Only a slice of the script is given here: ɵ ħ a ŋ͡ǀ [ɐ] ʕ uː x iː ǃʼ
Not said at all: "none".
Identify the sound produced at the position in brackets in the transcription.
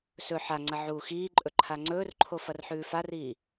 ɐ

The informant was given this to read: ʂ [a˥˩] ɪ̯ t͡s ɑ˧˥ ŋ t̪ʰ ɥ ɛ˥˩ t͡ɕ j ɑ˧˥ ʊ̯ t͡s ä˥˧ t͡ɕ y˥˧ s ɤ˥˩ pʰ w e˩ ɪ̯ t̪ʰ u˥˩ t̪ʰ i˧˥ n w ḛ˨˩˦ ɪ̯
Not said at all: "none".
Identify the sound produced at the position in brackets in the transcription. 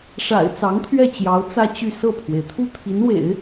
a̰˨˩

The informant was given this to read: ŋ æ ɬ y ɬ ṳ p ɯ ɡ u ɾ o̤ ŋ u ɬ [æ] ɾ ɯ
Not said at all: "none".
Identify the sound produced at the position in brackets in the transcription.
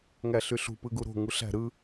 æ̤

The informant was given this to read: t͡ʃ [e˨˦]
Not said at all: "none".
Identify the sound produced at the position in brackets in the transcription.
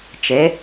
e˨˦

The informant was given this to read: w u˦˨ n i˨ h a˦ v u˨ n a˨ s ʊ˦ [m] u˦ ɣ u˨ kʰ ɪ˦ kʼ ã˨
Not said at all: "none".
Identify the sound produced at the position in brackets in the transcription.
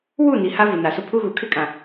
pʰ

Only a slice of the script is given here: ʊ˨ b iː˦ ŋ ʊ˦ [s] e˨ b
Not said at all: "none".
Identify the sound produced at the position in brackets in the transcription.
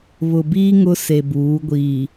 s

